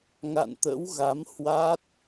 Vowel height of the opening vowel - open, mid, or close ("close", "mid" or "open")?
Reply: open